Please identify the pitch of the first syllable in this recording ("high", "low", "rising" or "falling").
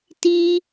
high